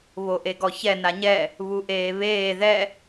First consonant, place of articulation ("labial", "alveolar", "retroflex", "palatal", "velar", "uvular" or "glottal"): labial